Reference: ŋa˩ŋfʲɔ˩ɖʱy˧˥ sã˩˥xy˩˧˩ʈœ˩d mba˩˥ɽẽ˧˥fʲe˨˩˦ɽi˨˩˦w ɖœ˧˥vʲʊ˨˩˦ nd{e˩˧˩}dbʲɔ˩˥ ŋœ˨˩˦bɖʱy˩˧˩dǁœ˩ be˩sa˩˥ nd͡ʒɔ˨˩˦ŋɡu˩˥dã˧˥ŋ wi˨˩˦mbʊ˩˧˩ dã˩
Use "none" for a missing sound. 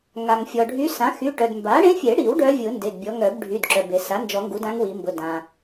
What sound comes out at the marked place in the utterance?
e˩˧˩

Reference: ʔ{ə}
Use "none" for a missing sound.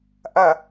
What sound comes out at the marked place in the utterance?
ɐ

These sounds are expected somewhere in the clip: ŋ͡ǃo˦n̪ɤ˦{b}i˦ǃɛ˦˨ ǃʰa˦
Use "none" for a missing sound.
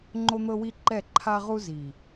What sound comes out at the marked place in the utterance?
w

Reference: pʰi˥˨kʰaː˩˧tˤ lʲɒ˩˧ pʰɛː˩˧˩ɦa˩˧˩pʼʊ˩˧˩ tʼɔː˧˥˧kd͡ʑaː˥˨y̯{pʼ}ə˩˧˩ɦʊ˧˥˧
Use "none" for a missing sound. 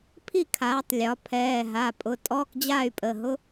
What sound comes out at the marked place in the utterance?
pʼ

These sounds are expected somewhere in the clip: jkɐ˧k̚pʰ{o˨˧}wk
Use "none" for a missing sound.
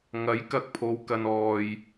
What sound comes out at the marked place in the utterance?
o˨˧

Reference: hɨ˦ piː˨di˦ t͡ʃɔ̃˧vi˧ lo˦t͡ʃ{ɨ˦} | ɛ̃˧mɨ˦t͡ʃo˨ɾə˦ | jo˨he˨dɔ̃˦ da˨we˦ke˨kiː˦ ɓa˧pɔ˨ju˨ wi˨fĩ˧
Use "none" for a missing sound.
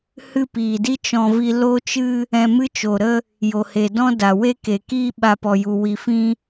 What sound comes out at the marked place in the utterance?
ɨ˦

